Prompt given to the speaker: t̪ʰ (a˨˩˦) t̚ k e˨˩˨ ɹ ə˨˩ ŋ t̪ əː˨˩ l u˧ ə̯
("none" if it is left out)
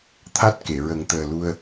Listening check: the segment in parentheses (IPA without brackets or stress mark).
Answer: a˦˥